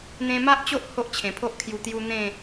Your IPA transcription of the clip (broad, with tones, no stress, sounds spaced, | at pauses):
n̪ ẽ˧ m a˦ ʔ t͡ɕ o˦ ʔ h o˦ ʔ t͡ɕʰ ẽ˨˩ pʰ o˦ ʔ kʰ j u˧ t̪ j u˦ n̪ ẽ˥˧